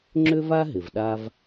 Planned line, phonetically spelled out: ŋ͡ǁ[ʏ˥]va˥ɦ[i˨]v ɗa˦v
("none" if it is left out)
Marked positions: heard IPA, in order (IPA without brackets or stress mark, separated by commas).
ʏ˥, ɪ˨